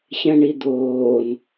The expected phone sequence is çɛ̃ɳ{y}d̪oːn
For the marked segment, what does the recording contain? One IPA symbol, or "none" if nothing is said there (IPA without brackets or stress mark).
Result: i